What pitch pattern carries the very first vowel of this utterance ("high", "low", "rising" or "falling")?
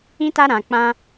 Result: high